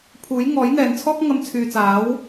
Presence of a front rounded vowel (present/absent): present